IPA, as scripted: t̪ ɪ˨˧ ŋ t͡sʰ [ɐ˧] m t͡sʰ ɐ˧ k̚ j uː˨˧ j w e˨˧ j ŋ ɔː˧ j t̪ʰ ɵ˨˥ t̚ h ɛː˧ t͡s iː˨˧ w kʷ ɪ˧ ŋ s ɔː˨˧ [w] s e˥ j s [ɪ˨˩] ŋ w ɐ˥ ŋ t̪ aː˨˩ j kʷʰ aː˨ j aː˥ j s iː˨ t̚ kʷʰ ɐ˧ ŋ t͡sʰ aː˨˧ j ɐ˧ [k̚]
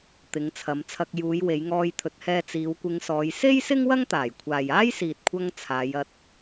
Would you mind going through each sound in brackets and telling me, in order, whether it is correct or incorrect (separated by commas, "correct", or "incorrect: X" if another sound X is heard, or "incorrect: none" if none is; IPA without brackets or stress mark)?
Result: incorrect: ɐ˨˧, incorrect: j, incorrect: ɪ˥, incorrect: t̚